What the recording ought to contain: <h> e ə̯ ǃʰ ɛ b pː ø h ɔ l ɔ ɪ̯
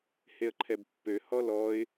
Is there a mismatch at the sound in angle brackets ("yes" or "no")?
no